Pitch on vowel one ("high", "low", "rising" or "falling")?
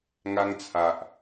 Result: high